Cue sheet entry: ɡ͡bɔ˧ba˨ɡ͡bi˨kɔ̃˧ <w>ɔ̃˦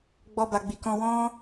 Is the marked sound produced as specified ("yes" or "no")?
yes